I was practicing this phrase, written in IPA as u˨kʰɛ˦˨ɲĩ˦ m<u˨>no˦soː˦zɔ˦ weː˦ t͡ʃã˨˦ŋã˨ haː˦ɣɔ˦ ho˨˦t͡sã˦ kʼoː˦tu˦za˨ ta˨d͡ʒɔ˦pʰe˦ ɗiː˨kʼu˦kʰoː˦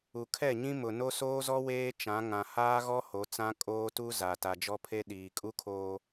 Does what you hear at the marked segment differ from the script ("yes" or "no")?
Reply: yes